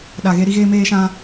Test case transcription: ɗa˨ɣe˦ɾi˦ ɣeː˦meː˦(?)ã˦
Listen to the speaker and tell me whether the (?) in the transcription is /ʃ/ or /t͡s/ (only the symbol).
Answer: ʃ